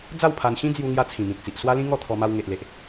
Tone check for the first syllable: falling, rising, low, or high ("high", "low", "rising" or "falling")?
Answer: falling